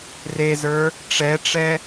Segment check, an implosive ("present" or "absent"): absent